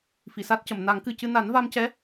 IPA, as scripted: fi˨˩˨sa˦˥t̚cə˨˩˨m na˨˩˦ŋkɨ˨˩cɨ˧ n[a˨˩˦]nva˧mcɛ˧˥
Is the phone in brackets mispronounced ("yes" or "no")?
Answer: no